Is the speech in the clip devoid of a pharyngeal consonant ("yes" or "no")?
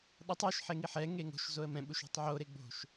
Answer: no